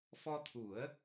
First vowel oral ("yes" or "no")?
yes